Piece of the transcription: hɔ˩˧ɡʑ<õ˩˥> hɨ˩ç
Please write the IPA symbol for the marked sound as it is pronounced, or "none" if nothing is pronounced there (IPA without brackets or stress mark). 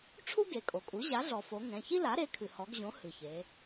õ˩˥